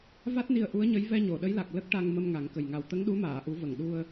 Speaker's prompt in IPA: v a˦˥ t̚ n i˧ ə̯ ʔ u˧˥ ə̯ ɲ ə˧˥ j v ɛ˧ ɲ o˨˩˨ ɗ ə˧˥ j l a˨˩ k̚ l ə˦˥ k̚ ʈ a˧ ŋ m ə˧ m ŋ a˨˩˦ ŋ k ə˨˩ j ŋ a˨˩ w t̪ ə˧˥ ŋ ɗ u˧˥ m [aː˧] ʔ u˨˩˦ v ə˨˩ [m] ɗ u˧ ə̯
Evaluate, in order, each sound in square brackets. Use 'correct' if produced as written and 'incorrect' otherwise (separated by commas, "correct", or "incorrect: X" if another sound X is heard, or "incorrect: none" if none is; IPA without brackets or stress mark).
incorrect: aː˨˩˨, incorrect: ŋ